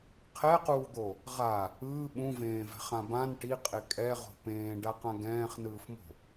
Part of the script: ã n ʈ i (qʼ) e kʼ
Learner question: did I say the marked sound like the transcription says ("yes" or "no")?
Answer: yes